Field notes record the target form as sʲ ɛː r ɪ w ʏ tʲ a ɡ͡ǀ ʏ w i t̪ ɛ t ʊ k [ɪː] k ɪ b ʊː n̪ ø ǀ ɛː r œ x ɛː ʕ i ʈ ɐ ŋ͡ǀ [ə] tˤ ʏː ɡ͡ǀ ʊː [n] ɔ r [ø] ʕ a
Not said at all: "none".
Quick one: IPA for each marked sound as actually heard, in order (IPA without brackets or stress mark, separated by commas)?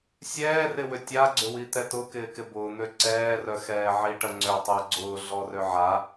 ɪː, ʏ, ɮ, ø